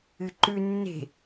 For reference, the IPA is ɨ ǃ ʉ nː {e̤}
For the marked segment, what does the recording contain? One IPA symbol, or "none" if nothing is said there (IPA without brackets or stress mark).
e̤